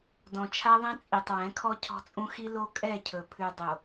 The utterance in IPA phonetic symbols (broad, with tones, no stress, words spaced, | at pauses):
dɔ̃˨t͡ʃʰa˦ðˤɛ̃˦t͡sʼi˨tˤ wɛ̃˨˦kʰɔ˦ cʰɔ̤˦t͡sʼũ˦ xi˦ lo˦kʼɛ˦˨cʰɵ˨ pʰʉ˨dˤo˨